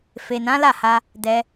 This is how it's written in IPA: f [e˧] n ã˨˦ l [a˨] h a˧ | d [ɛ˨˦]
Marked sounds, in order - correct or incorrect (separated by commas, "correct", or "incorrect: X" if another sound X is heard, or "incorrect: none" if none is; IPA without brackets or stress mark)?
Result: incorrect: e˨, incorrect: a˦˨, incorrect: ɛ˧